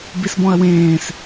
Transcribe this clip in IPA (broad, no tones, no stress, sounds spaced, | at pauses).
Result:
b i s b ɔ̃ ɐ̯ w ẽː s